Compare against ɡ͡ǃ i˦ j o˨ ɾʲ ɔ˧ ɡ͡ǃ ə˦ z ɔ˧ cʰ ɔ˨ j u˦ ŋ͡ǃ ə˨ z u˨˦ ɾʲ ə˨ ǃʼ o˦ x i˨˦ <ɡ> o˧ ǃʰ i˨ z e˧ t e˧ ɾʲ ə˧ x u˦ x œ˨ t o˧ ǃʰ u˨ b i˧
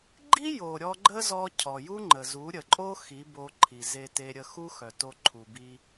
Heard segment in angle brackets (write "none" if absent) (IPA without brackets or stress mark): b